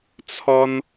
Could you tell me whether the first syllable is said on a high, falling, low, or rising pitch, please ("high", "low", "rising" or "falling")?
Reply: high